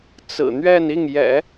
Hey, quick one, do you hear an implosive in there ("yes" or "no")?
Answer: no